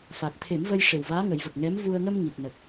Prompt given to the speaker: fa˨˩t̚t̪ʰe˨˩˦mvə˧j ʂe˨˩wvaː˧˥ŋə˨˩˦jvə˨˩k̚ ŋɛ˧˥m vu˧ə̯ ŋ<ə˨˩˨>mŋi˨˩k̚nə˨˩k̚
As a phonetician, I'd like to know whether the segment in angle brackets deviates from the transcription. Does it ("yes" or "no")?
yes